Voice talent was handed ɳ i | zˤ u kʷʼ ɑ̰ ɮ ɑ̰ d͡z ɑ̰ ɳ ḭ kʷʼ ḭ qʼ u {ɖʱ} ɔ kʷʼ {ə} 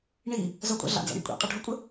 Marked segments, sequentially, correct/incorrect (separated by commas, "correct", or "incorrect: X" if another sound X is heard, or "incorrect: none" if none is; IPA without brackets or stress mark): correct, correct